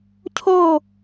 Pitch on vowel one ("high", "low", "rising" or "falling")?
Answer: falling